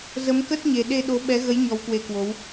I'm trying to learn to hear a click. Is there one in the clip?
no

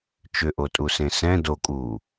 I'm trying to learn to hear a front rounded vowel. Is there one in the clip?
yes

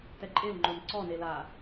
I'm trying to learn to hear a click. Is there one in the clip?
yes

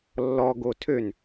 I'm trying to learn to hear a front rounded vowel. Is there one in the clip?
yes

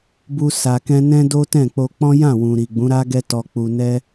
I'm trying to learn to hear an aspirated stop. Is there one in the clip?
no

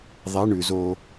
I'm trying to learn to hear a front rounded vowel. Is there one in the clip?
no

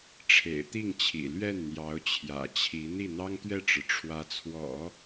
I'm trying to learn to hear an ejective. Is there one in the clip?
no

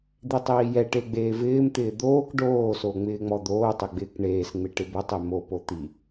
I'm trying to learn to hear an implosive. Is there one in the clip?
no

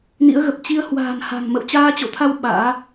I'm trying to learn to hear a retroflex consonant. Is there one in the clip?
no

